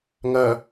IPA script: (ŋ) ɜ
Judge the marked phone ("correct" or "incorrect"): correct